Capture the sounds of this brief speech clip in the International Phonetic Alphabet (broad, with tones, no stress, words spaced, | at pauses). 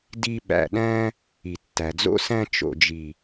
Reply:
di˧ ɓæ̰˨ɗæ̃˧ | i˨tːæ˨d͡zo̰˦ sæ̃˧ t͡ʃo̰˨d͡ʒi˨